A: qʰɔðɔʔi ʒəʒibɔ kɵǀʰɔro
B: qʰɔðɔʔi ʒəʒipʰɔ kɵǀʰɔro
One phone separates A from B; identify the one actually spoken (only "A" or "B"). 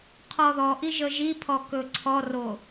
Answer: B